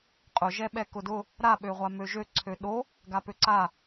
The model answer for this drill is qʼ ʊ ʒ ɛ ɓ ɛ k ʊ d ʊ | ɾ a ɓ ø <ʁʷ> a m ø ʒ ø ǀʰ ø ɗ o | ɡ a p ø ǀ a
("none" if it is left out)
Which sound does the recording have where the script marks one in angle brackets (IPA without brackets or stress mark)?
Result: ʁʷ